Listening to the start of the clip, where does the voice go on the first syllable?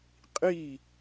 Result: falling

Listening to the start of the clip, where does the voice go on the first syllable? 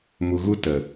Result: low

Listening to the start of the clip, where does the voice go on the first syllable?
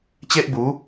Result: high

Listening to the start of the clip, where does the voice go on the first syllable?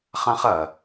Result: high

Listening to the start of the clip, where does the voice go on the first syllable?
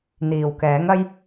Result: low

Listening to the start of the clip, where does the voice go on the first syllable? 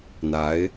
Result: rising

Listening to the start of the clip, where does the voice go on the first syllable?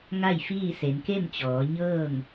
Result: falling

